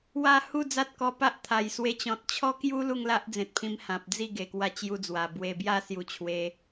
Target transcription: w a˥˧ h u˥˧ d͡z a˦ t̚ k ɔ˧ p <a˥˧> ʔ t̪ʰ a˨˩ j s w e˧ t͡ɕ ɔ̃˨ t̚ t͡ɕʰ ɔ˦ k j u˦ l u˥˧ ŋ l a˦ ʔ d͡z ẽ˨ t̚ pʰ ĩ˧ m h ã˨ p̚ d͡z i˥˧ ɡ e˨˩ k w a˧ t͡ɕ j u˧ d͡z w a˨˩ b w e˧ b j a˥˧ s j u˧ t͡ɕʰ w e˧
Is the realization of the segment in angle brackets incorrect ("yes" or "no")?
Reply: yes